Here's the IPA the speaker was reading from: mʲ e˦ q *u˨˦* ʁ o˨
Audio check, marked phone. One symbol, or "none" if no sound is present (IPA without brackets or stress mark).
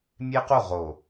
u˦˨